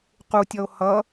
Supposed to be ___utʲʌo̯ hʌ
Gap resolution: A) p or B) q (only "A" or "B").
B